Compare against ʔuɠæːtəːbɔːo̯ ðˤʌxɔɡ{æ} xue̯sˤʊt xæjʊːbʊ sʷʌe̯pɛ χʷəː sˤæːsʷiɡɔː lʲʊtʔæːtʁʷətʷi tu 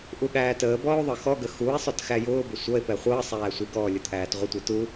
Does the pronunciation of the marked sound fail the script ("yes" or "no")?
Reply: yes